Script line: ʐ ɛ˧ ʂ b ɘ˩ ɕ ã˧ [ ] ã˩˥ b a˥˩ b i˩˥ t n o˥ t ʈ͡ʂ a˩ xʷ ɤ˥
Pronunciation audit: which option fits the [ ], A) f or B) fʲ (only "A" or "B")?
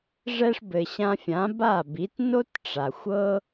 B